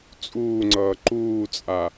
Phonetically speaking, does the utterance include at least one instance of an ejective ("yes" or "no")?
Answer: yes